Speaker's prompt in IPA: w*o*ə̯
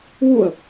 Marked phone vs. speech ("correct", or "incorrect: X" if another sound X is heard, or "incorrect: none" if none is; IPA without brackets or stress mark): incorrect: u